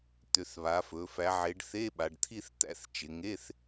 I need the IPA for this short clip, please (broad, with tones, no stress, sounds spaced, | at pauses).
t̪ ʏ˩˧ θ β a˩˧ f ɵ˩˧ f æ˩˧ ʕ e˩˧ ɖ θ e˧˥˧ ɓ a˩˧ ɖ t̪ʰ i˥˧ θ t̪ æ̰˥˧ θ t͡ʃ ɪ˩˧ ŋ e˧˥˧ θ